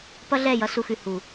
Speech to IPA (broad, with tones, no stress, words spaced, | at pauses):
pʌ˦ɮɛ˦˨ jʌ˦su˧xʉ˨hu˨